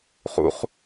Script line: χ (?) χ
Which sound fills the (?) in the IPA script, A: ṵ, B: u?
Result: A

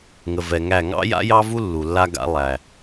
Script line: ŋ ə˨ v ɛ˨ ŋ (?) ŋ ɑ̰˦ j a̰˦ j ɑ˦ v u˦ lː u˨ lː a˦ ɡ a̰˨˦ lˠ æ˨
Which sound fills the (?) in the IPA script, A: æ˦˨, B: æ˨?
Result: A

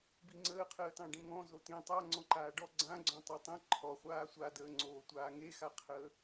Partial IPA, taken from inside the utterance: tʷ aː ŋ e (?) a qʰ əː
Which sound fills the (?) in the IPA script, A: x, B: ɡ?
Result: A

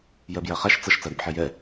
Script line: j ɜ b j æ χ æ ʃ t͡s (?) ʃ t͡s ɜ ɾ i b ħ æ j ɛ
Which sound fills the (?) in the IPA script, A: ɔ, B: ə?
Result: B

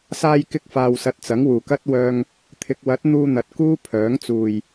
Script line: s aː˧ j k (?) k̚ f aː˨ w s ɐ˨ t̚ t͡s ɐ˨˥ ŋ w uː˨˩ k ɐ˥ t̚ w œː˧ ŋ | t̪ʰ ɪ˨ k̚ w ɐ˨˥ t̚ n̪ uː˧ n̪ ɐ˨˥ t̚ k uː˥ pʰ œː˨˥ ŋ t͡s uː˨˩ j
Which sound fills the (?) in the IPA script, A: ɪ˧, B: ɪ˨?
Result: A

